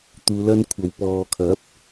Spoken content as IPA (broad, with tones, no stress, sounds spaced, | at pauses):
t̪ uː˨˧ l ɐ˥ n kʷʰ ɐ˨ w p ɔː˨ kʰ ɐ˨˥ p̚